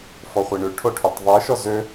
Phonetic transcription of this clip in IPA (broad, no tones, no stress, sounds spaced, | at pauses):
f ɔ χʷ i ɳ ʉ ʈʰ o ʈʰ y tˤ ðˤ i ʃ ɔ z ø